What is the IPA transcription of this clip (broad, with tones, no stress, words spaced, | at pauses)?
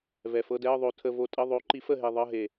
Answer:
vɛ˨˩fɤ˧˥˧dɛ˧˥˧ə̯ ðˤo˧ tʰə˧vo˧tʼə˧˥˧ ðˤo˨˥ǃi˨˥f ə˥˩ɦe˧ ðˤɤ˧˥˧ɦe˨˩